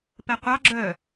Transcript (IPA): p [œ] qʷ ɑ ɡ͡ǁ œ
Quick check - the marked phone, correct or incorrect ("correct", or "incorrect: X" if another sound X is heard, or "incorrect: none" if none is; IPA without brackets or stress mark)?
incorrect: ɛ